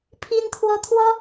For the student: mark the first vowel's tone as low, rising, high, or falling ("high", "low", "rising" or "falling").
high